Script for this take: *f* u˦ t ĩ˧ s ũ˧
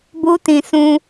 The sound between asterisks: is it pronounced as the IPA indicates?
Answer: no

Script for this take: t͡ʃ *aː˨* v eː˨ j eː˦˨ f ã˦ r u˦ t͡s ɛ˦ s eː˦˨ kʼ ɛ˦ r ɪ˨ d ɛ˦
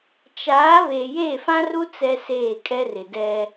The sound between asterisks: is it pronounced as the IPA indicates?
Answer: no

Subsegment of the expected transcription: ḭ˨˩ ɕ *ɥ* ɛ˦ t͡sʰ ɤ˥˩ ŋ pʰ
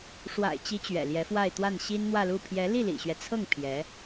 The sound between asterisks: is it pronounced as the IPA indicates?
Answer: yes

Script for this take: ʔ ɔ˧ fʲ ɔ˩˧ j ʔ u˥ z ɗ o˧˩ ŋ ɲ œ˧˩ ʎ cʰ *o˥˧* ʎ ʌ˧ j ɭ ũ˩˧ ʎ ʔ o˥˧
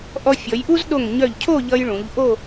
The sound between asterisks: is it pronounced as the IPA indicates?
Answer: yes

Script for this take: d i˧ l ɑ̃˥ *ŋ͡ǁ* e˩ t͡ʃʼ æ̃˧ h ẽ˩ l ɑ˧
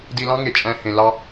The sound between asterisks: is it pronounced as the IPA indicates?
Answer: no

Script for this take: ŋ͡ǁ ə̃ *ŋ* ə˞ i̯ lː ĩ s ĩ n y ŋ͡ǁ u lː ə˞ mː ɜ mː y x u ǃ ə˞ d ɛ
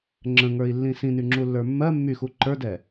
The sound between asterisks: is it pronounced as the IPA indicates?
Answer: yes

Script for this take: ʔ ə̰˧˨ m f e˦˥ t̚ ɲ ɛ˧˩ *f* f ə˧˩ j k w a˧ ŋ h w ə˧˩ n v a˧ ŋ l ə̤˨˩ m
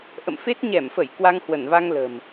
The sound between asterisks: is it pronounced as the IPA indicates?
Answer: no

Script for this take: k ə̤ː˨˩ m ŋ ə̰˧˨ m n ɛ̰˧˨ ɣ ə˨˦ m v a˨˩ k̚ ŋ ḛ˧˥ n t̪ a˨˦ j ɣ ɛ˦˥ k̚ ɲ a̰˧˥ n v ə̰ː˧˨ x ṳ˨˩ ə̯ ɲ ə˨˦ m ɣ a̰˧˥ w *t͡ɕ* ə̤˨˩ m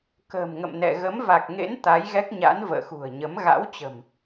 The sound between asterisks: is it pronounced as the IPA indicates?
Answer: yes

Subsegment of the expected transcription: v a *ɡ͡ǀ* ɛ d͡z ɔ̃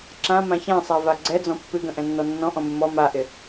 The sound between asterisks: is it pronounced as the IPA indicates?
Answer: yes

